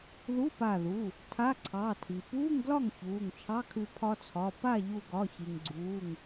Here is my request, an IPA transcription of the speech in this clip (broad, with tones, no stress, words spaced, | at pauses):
ðu˧˥˧pa˧˩ðu˩˧˩ | tʰa˧˥˧ǀʰɑ˩˧˩ tʰi˩puː˧˥˧ŋɡlɒ˥˩ŋ çuː˩˧˩ŋt͡ʃʰɑ˧˥˧kʰʉ˧ pʰɒ˧t͡sʰɒ˩˧˩ pa˥˩ʎu˧˩ɡɒ˩˧˩ çi˩ŋɡ͡ǀuː˩˧˩ŋ